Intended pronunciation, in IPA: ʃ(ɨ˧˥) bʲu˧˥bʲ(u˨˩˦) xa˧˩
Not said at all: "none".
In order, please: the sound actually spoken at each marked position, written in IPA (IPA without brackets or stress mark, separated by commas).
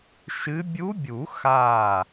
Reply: ɨ˧˥, u˨˩˦